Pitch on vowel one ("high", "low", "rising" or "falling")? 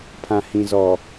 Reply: low